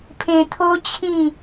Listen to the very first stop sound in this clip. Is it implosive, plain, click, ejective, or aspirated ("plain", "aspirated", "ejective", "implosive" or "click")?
aspirated